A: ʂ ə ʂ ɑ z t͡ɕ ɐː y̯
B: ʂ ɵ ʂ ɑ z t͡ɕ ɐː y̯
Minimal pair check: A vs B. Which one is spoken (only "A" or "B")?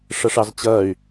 A